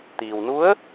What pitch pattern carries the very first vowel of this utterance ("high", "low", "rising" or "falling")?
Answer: low